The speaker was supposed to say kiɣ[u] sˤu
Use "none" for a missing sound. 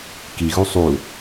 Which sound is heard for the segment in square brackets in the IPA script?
u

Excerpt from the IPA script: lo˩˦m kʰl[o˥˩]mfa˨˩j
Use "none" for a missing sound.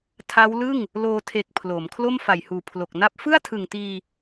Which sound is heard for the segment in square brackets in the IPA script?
o˥˩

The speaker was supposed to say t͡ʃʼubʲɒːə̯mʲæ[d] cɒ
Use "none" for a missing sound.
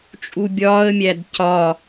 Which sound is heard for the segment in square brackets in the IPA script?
d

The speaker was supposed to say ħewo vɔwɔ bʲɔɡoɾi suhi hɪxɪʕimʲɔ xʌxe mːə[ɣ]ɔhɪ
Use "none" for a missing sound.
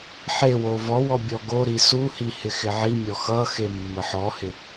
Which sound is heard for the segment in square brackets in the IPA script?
ħ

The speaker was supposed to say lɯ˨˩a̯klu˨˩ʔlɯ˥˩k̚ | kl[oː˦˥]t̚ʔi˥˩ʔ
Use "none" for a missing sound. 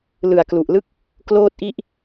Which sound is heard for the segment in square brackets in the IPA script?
oː˥˩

